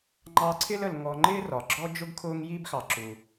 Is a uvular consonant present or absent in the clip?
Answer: absent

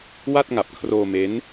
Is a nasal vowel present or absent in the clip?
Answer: absent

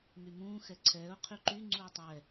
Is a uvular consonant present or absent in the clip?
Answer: present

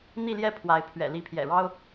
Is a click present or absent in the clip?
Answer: absent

